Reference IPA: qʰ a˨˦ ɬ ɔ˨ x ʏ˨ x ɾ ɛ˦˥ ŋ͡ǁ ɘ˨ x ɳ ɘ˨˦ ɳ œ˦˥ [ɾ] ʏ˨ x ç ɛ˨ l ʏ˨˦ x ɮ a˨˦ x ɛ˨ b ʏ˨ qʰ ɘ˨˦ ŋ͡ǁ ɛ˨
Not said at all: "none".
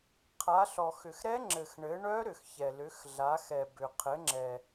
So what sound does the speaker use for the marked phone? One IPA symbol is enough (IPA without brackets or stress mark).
ɾ